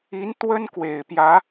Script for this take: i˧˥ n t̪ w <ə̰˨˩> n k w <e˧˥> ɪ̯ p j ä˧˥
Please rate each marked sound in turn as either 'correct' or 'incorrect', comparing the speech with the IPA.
incorrect: ə˥, incorrect: e˨˩

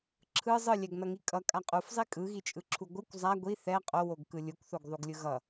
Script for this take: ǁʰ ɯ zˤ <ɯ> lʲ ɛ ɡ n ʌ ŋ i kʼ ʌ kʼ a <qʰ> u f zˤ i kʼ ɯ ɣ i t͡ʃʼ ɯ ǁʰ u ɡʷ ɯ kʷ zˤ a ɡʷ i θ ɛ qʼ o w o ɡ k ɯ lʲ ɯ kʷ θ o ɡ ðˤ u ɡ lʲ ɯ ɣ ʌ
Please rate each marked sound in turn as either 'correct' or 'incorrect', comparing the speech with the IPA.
correct, incorrect: qʼ

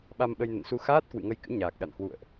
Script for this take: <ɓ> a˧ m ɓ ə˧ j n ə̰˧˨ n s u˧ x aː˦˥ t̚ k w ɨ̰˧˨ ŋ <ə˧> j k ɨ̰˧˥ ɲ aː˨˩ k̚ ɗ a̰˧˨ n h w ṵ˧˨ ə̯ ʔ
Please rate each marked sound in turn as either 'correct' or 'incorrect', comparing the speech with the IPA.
correct, correct

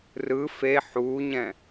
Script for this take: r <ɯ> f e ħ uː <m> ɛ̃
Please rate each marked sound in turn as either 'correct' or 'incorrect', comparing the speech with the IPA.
correct, incorrect: ɲ

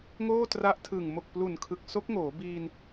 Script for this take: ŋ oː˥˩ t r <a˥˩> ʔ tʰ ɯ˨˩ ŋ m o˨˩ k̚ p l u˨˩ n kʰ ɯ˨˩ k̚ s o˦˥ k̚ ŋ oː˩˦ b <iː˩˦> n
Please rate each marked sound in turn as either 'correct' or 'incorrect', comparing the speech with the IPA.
incorrect: a˦˥, incorrect: iː˧

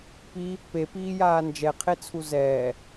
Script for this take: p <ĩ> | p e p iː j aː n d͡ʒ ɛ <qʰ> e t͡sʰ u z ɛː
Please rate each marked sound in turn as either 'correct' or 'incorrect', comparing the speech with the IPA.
incorrect: i, correct

